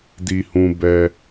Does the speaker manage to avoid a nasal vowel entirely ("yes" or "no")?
no